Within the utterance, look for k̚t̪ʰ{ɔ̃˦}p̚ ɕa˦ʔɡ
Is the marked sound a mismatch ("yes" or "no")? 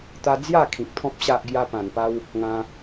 no